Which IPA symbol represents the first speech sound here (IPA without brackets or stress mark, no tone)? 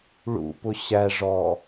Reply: ɭ